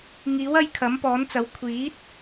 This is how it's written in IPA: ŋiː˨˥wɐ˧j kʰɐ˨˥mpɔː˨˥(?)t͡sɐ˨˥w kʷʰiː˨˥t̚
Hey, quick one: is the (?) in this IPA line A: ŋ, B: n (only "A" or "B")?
B